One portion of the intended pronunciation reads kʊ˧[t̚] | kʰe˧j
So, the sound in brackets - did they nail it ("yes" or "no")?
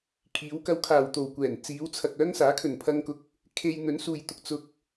no